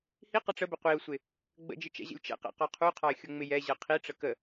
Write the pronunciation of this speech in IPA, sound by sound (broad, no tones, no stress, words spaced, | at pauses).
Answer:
hi qəʈ͡ʂəbə qʷiʊ̯sʷɪ | ɡ͡bə̰d͡ʒɪ t͡ʃɛ̰ʑə̰lʲt͡ʃɛ̰qɛ̰ qɒqʰuqʰɒɪ̯ xʲʊŋ͡mɪjɛʑɜ qʰiʈ͡ʂə kə